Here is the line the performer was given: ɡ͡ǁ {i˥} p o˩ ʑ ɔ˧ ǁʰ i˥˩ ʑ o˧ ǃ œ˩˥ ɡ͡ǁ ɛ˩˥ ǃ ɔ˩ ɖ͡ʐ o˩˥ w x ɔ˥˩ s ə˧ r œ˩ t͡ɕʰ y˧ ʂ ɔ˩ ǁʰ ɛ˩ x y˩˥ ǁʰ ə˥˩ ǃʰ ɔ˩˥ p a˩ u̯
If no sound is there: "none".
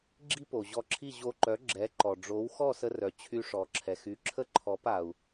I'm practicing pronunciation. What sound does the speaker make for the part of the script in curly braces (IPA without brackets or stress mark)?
i˥